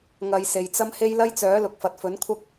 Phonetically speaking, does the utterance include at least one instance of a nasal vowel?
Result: no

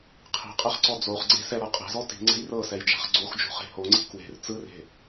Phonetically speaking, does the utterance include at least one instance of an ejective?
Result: yes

